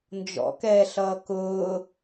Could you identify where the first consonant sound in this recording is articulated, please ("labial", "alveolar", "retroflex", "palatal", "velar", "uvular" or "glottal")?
alveolar